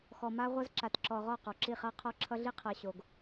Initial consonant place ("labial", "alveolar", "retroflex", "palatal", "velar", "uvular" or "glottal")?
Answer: velar